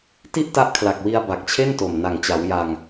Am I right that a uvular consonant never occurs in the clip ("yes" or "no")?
yes